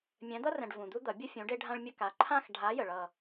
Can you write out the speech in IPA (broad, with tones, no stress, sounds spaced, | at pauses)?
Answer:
mʲ ɛ̃˨˦ d̪ ʌ˦ r ɛ̃˨ ɖ v ũ˨ d̪ u˦ d̪ ʌ˨˩˦ bʲ ʊ˦ fʲ ũ˨˦ ɖ e˦ ɖʱ ã˦ ɭ mʲ ə˦˨ k a˨ ǃʰ ã˦˨ x ɖʱ a˨˦ j ə˨ ɭ ʌ˦˨